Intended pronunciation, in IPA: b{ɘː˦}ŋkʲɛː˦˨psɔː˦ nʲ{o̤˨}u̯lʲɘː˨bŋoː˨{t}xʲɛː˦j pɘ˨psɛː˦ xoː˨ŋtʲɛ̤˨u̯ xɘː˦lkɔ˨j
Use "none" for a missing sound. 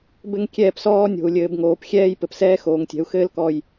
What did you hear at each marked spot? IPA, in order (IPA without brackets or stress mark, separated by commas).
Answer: ɘ˦, o̤˨, p